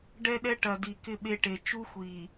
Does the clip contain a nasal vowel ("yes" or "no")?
no